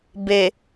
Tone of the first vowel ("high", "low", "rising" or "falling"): low